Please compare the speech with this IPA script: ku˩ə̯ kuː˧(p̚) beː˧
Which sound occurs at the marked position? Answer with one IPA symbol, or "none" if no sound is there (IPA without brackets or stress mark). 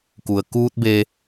t̚